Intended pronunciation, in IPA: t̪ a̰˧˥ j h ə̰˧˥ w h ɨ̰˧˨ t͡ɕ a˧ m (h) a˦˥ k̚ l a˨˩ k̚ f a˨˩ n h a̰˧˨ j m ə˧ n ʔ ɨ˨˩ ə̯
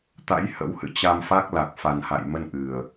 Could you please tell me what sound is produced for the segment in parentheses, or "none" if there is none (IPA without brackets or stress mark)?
f